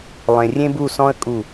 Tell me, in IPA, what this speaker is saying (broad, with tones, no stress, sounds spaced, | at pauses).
lˠ ẽ˧ rʲ ẽ˥ b u˥˧ s ɔ̃˥ ə̯ kʼ u˥˧